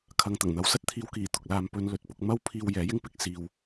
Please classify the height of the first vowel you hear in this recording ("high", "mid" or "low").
low